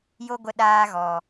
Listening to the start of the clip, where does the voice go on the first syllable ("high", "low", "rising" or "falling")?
high